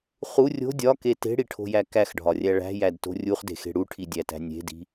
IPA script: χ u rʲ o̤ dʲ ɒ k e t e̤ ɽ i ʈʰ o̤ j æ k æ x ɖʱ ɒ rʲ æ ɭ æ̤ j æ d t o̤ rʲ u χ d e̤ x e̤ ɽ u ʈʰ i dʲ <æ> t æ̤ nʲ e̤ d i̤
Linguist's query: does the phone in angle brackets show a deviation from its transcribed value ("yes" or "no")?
no